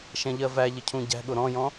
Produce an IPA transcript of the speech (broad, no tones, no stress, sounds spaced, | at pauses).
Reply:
ʃ ɛ̃ ʎ ɜ v æ ʎ ə cʰ ũ ɟ æ̤ ɠ ʊ ɾ ɔ̃ j ɔ̃